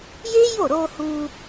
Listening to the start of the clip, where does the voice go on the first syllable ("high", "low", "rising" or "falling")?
high